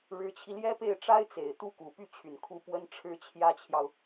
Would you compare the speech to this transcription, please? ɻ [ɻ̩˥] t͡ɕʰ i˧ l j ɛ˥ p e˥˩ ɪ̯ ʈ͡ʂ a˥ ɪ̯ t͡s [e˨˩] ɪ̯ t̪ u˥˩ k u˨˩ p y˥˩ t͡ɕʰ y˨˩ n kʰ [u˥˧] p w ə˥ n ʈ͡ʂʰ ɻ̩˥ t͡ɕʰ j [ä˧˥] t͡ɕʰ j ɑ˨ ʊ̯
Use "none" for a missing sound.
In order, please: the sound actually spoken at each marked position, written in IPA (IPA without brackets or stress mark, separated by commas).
ɻ̩˧˥, e˨˩, u˧˥, ä˥